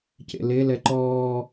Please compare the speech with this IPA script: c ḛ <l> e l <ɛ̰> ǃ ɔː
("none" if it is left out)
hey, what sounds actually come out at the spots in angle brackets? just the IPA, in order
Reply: l, ɛ

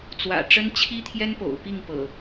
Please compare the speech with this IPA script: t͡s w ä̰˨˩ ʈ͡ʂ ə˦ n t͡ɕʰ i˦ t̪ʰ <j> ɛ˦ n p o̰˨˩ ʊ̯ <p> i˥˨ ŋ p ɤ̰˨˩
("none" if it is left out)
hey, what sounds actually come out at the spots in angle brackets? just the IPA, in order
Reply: j, p

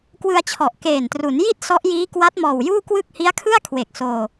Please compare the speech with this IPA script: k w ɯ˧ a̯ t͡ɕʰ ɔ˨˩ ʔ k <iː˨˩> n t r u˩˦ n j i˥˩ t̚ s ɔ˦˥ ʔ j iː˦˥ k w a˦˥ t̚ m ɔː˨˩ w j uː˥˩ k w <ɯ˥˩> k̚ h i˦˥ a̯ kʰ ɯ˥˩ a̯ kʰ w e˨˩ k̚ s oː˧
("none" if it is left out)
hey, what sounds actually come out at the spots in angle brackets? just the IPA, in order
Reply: eː˨˩, ɯ˥˩

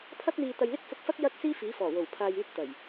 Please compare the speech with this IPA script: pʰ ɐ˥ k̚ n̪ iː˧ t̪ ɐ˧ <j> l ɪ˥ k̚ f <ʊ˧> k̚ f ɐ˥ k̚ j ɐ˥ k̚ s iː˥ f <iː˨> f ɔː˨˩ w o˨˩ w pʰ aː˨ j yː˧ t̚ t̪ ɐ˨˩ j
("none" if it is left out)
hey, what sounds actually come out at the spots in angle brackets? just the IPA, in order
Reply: j, ʊ˧, iː˨˥

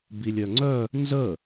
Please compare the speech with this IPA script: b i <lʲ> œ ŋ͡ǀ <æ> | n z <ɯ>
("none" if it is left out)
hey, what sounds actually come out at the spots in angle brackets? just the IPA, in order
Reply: lʲ, œ, ə

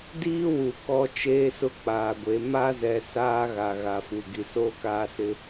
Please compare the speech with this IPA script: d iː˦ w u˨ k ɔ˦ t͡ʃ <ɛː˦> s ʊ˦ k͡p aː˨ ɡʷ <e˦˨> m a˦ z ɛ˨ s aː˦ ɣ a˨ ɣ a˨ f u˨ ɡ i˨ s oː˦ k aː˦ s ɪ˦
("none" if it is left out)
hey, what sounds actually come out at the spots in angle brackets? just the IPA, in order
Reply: eː˦, e˨˦

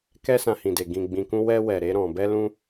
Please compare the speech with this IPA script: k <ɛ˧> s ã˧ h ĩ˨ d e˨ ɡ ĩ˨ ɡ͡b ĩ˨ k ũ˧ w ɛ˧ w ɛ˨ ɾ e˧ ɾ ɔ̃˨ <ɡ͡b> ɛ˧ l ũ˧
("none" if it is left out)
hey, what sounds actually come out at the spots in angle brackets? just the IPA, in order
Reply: ɛ˧, b

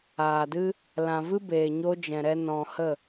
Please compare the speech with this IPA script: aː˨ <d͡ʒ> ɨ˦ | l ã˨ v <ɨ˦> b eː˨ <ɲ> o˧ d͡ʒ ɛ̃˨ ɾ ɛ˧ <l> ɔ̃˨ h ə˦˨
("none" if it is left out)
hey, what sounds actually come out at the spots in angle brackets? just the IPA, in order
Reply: d, ɨ˦, ɲ, n

